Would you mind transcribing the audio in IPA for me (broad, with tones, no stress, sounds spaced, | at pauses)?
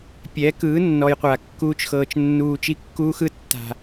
pʲ ɛ˨˦ k ɯː˨˦ nː ɔ˨ j qʷ a˨ kː uː˧ t͡ʃ x ɤː˨ t͡ʃ nː uː˨ t͡ʃ i˧ kː uː˧ x ɯ˧ tː a̤˨